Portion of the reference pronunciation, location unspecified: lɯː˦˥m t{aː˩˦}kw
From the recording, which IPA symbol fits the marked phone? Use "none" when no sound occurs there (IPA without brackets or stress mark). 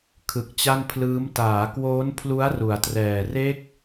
aː˩˦